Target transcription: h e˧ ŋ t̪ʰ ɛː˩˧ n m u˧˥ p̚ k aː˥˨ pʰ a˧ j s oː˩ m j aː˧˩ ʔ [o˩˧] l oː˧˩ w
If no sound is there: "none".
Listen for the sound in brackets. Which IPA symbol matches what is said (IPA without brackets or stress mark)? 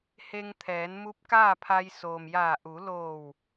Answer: u˩˧